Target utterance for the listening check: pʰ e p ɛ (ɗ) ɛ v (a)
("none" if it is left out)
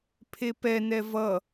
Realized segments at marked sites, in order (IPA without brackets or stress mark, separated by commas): n, ʌ